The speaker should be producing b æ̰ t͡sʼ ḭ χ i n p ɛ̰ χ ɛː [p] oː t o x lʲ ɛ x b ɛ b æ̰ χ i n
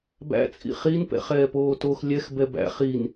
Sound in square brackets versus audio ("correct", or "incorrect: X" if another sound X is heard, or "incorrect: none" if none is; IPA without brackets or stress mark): correct